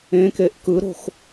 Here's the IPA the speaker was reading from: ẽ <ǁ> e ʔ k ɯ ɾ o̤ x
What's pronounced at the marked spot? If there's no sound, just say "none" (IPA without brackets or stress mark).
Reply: k